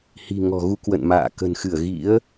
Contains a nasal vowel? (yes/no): no